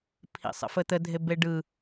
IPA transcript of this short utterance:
pʰḭsˤə̰fət̪ə dʱebeɖɯ

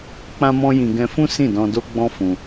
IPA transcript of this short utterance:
k͡pã˦mɔ̃˦jĩ˧ ɡɛ̃˧fũ˦ sĩ˦˨dɔ̃˧ do˦ɡ͡bɔ̃˦ fũ˧

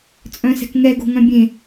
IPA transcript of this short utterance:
t͡sʼœ̃sɛ̤kŋɛ ɡo̤ŋœ̃bʲẽ

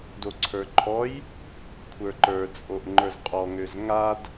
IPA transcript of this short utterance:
doǀʰə˞ǃʰɔj | kʷʰə˞ǃə˞ t͡sʼoʔŋ͡ǃə˞zqʼɔ ŋøzŋad

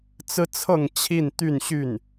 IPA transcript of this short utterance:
t͡sɹ̩˥t͡sʰɤ˥˧ŋ t͡ɕʰi˥˧nt̪y˥˧n ɕy˥˩n

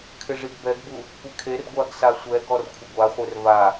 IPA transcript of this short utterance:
kʰɪʐiɡbɛɡbu | kʷɪkʰerɡʷaɡ sasʷɛɡɔr kʷʰɪɡʷaχʷer va

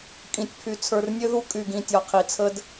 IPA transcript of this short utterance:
kʼĩ˨tʲpʰy˨ t͡sʰə˞˨rnʲø˦ðu˦ kʼy˨ɡĩ˨tʲɒ˨ qʰi˨t͡sʰə˦d

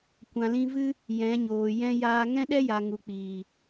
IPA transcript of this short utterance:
kʷã˨lĩ˧vɨ˦ | jɛ̃˨˦ɲoː˨jɛ̃˦ jaː˧ŋɛ̃˦ɗɛ˦ja˨ ŋu˨k͡piː˨

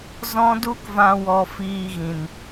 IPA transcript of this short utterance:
zɔ̃˦du˦kvã˧ wɔ˧ fiː˧ɣĩ˨n

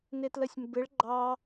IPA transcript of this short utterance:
nɪtləsʲmbɪɭ ɡ͡ǃɑ

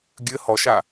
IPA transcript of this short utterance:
ɡʲɘ hɔʃa

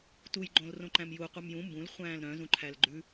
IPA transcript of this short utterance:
tuj ɡ͡ǃõlrõǃæ̃mju qʷœmjũ mbũl χʷæ̃ːlɾœ̃ zũǃʰælɡ͡ǃʉ

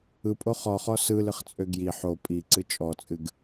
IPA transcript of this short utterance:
ɯpʼo χɔχɔ sɯlɨχt͡sʼø ɡji ħo pʼiǀɨ t͡ʃʼɔt͡sʼɨɡ

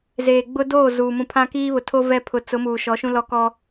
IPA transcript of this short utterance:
zeː˨ ɡ͡bʊ˦doː˦˨ zuː˨ mũ˨pʰã˦kiː˦βʊ˨ tʰo˦ vɛ˦ pʰʊ˨t͡sʊ˨˦ muː˨ʃɔ˨˦ʃũ˦ lɔ˦kɔ˦

